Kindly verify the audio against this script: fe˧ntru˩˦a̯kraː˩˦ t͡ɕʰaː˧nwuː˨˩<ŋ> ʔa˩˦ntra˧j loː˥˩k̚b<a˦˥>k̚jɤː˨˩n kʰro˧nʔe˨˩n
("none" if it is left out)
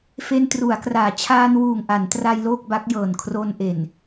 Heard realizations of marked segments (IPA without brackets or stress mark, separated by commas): ŋ, a˦˥